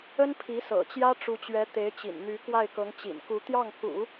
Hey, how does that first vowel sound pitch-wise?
high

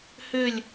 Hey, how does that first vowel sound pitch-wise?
falling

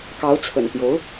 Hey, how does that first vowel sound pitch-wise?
rising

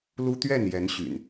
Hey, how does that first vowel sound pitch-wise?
high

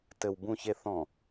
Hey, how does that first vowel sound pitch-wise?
low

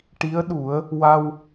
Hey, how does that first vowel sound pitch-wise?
rising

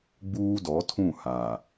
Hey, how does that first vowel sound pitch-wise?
high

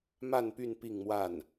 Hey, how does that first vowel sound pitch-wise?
falling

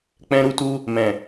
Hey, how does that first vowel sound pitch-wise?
high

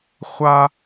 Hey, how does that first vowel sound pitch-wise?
high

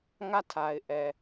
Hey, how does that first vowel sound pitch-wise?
falling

